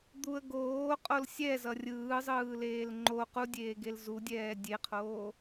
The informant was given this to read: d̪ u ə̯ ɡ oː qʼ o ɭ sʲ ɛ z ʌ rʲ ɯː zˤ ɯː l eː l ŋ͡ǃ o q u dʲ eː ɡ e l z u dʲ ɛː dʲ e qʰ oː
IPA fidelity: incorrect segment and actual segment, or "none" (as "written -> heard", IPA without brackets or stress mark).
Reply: ɭ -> l